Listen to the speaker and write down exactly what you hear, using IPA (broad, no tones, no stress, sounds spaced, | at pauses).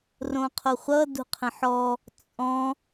r õ qʰ o χʷ ʌ d ṳ qʰ ə̃ ħ ɔ | t͡sʼ ɔ̃